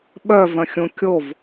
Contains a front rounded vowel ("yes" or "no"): yes